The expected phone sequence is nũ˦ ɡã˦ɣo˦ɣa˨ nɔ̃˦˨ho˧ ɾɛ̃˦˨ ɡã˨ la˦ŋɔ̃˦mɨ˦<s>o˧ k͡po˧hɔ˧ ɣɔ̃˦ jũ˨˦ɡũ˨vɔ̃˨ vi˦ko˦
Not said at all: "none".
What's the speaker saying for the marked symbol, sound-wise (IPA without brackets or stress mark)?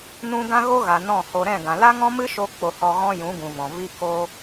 ʃ